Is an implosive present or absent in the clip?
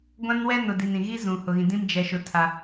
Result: absent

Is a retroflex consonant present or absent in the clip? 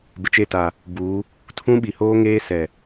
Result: absent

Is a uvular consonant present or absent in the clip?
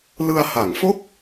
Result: absent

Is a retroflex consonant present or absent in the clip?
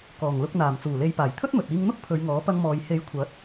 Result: absent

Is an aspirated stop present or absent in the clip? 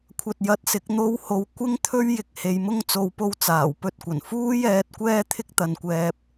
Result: present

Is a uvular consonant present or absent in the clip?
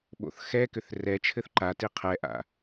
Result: present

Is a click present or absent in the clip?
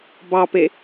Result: absent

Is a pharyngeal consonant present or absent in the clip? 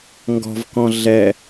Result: absent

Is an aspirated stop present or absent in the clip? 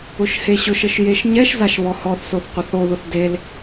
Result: absent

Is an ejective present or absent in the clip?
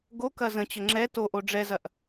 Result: absent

